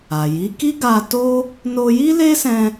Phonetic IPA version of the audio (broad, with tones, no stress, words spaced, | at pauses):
a˨ji˨˦ ki˦ɡa˧to˦ | no˧ji˦le˦sɛ̃˧